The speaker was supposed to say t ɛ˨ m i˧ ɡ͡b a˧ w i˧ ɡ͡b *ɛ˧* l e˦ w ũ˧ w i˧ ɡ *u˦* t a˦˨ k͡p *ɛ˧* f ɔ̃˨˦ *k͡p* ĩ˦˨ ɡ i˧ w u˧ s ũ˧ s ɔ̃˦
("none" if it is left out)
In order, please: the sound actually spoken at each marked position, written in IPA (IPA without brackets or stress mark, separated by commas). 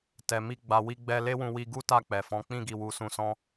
ɛ˧, u˦, ɛ˨, k͡p